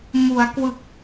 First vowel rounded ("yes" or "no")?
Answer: yes